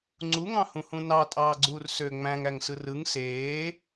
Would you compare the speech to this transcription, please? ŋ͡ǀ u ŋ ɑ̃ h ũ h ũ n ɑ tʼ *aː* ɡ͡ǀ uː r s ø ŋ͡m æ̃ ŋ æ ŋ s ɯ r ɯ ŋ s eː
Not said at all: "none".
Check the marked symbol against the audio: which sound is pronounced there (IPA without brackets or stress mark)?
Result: ɑː